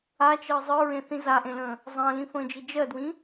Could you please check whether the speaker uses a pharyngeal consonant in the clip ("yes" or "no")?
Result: no